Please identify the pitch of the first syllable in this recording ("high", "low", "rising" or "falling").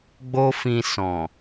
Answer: high